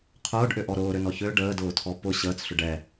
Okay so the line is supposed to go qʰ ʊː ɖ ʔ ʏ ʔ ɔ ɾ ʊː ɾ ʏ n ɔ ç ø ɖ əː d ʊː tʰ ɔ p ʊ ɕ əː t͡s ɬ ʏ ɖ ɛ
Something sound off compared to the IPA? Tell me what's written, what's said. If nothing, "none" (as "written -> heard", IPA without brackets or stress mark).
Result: none